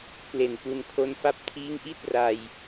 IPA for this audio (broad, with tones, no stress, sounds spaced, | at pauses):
k l e˨˩ n p u˧ n kʰ o˦˥ n f a˦˥ p̚ tʰ iː˦˥ ŋ ʔ i˥˩ t̚ r a˧ j